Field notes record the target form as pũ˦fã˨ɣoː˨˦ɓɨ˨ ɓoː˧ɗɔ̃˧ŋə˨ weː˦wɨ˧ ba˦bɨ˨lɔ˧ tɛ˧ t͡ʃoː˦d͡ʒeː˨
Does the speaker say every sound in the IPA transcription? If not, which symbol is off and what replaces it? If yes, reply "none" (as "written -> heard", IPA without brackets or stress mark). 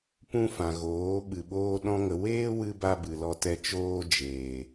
none